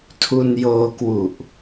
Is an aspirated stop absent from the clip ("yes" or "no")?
no